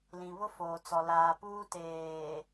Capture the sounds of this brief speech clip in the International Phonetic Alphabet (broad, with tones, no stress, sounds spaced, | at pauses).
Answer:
l ĩ˨ β ʊ˦ f oː˨ t͡s ɔ˨ l aː˨ p uː˦ t eː˨